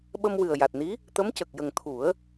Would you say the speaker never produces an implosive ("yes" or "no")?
no